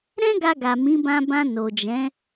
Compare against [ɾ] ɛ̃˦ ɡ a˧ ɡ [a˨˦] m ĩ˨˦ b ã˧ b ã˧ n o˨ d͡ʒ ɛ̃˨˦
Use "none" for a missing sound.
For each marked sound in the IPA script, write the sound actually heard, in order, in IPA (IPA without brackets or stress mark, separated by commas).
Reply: ɾ, a˨